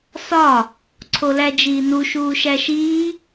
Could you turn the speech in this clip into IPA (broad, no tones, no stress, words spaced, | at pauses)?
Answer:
sɒ | ǀʰolæd͡ʒiːnu ʃuːʃæʃiː